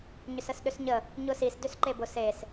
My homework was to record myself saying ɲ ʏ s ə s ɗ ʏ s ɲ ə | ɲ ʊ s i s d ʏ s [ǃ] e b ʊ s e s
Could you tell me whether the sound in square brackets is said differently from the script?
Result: no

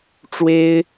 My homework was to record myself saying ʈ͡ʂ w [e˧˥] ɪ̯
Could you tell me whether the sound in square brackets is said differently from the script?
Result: yes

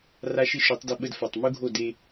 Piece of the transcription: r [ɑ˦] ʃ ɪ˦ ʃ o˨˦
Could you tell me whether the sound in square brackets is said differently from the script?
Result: yes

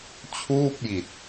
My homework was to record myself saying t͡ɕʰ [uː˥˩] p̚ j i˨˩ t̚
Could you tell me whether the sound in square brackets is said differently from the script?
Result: no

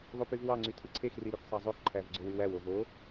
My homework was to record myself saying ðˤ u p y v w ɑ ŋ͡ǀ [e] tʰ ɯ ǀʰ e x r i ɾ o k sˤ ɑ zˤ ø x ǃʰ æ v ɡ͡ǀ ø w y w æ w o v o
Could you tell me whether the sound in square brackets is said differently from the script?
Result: yes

